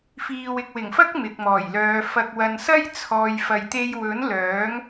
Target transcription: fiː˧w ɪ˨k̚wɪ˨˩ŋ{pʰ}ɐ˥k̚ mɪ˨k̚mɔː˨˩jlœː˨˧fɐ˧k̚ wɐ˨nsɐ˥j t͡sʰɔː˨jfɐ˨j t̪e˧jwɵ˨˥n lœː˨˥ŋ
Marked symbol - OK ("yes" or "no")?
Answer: no